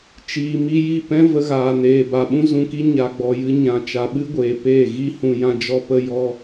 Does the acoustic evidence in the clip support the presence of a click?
no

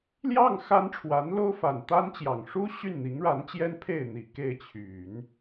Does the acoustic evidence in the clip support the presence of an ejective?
no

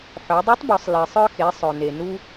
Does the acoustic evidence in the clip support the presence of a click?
no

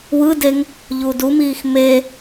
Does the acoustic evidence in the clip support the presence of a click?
no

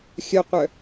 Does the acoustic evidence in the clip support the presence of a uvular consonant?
yes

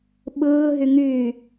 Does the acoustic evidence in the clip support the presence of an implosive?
yes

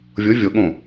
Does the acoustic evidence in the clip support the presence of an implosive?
yes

